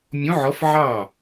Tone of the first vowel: rising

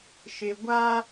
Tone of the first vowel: low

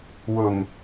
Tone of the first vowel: low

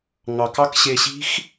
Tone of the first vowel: low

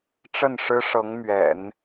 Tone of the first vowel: falling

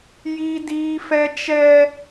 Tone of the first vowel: high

